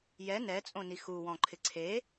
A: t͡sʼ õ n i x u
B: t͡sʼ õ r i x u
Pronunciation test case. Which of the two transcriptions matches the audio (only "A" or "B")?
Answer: A